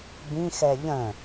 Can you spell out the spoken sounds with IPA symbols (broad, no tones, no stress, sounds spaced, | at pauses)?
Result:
b ĩ x ɛ ʎ ə̃